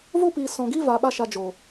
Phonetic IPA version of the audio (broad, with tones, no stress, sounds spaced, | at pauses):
v o˦ p iː˨ s ɔ̃˨ ɡ i˦ v a˨ ɓ a˧ ʃ a˨ d͡ʒ o˨